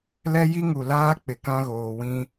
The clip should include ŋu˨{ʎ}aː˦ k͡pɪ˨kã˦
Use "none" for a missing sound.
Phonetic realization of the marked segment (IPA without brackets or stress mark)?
l